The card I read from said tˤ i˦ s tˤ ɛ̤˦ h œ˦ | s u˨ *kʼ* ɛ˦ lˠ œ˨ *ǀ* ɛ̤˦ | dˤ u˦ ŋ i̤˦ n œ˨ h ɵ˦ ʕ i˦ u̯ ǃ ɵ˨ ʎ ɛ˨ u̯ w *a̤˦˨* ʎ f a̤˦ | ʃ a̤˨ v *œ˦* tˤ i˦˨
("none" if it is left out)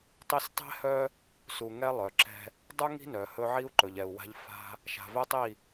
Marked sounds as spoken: ŋ, ǁ, a̤˦, ɛ˦

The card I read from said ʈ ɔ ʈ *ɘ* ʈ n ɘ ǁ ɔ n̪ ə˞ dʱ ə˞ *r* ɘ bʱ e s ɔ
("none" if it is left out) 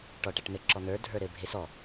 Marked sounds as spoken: ɛ, ɾ

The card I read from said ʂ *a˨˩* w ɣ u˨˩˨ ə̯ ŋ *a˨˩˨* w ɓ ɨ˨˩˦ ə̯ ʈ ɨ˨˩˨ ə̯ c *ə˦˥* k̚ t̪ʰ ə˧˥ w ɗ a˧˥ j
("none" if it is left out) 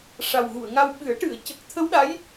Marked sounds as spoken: a˨˩, a˧, ə˨˩

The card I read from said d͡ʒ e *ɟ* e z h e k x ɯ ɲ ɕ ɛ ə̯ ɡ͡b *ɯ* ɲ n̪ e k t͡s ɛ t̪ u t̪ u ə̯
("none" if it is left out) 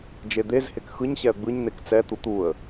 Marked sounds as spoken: d̪, ɯ

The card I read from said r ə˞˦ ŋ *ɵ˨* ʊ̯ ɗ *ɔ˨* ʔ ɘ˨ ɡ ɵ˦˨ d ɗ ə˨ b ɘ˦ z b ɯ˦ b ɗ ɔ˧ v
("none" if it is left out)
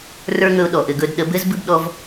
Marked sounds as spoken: ɵ˧, ɔ˨

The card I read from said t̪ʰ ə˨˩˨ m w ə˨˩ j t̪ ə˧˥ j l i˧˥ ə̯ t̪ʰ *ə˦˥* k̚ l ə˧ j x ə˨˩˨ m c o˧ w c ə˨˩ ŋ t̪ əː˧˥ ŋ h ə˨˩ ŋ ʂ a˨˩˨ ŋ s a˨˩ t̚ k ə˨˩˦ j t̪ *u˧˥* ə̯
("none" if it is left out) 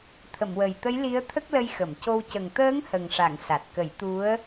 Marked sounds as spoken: ə˦˥, u˧˥

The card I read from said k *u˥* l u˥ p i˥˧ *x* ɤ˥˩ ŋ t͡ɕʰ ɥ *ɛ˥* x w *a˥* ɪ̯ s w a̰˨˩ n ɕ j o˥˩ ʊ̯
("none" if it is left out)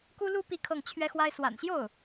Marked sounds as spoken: u˥, kʰ, ɛ˥, a˥

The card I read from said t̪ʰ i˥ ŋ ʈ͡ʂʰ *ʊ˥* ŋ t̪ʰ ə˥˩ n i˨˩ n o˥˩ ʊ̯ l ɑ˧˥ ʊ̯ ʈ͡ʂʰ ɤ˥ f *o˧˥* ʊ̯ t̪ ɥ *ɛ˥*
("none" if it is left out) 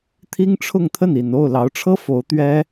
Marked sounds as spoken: ʊ˥˧, o˧˥, ɛ˥

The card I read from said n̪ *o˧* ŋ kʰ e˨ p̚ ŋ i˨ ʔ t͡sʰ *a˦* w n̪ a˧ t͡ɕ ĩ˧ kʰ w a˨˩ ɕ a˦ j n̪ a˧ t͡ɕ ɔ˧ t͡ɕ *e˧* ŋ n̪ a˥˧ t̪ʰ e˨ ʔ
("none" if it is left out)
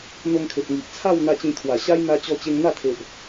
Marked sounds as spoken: o˧, a˥˧, e˧

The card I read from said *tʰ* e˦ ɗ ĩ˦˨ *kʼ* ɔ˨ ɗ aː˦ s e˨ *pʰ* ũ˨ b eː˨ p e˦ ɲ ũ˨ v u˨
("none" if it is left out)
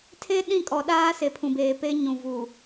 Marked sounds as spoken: tʰ, kʼ, pʰ

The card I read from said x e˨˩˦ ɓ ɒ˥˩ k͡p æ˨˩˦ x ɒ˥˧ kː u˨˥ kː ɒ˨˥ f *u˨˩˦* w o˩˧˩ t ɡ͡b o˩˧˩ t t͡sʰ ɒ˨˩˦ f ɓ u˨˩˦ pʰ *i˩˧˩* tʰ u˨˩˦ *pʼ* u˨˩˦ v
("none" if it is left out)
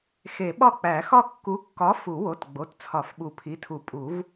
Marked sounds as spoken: u˨˩˦, i˩˧˩, pʼ

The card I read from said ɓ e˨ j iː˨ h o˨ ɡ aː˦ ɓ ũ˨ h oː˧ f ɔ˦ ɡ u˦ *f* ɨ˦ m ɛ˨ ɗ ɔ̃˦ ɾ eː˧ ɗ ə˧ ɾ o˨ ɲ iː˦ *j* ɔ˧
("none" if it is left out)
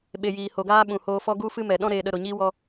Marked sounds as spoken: f, w

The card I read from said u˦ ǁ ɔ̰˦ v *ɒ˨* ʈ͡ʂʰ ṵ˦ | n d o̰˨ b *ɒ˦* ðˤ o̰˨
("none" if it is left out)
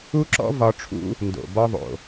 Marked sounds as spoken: ɒ˧, ɒ˦

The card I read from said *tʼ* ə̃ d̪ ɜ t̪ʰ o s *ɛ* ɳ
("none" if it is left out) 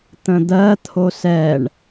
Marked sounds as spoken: t̪, ɛ

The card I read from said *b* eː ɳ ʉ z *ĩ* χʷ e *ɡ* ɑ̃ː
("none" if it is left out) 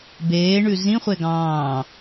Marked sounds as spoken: b, ĩ, ɡ

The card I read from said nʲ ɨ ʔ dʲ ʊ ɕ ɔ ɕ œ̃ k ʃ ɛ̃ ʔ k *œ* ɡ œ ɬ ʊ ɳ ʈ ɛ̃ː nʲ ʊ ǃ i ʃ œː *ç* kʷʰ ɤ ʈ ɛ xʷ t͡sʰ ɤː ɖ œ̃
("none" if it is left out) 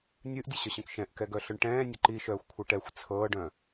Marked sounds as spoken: ɛ, xʷ

